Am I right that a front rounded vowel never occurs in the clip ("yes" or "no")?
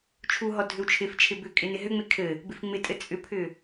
no